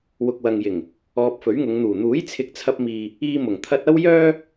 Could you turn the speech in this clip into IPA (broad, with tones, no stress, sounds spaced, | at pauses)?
w ʊ˨ k̚ w ɐ˨ ŋ j ɪ˨˩ ŋ | ɔː˧ p̚ f ɵ˨˥ ɥ ŋ ʊ˨˧ ŋ n̪ uː˨˩ n̪ uː˨˥ j t͡sʰ ɪ˨ k̚ t͡sʰ ɐ˧ p̚ m iː˨ | iː˧ m ʊ˨˩ ŋ t̪ʰ ɐ˧ t̚ ɐ˥ w j œː˥